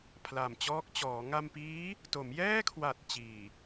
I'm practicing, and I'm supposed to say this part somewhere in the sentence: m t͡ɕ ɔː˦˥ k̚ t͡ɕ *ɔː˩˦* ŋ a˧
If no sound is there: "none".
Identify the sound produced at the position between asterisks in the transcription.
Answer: ɔː˩˦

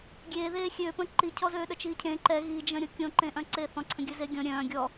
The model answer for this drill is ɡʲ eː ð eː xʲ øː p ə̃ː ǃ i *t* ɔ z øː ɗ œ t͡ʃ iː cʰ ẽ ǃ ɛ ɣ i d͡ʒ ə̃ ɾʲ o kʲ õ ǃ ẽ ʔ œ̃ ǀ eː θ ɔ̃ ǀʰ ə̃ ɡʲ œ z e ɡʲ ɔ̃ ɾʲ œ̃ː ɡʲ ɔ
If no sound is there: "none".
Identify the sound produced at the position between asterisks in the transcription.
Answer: cʰ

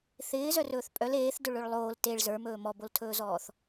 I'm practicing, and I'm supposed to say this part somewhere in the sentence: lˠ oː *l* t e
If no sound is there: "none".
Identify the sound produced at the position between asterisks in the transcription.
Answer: l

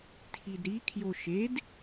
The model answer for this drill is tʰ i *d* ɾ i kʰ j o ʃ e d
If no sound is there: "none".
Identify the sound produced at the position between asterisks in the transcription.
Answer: d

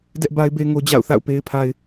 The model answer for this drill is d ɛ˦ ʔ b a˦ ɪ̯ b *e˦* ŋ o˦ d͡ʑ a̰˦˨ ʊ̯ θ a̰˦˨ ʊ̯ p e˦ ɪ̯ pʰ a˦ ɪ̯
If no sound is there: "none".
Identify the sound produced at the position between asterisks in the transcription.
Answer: e˦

